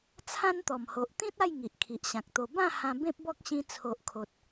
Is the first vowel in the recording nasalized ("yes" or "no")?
yes